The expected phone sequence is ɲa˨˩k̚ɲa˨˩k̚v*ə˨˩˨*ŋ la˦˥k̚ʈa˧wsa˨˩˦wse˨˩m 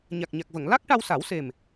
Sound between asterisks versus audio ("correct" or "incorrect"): correct